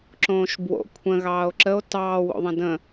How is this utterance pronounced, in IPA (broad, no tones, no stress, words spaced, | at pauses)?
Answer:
ǁõːʃbwo̰ kʷʰə̃ ɣɑːo̯ǁəo̯ tɑːwo̰ðˤə̃ də̃